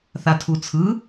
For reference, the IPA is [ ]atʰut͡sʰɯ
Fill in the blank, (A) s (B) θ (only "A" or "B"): B